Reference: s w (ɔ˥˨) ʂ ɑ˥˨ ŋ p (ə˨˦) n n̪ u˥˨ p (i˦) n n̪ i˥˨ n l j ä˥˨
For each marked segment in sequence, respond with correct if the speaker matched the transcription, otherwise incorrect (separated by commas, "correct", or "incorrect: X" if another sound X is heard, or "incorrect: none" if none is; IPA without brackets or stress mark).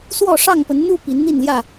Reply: correct, correct, incorrect: i˨˦